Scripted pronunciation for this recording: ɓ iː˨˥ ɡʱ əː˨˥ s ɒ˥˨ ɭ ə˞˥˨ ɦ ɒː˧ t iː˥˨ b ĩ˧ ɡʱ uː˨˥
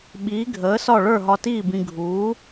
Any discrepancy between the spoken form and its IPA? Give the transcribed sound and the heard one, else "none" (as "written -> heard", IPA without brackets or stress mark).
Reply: ɒː˧ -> ɒ˧